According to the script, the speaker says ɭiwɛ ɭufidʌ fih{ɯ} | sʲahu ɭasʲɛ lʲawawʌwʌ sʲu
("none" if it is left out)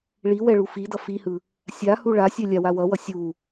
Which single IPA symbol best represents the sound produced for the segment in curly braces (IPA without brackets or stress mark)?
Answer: ɯ